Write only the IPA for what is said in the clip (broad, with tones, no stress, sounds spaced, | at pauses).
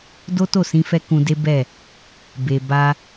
d o˦ t o˦˨ s ĩ˧ f ɛ˧ k ũ˧ d e˦ b ɛ˦˨ | b e˧ b a˦